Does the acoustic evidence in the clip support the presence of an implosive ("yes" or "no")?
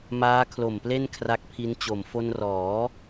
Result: no